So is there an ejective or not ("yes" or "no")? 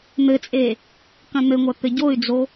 yes